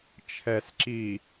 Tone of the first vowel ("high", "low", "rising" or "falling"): low